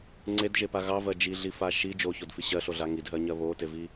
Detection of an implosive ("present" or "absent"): absent